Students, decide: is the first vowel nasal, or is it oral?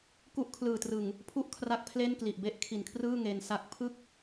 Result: oral